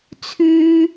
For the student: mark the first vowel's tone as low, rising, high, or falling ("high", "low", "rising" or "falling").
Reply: high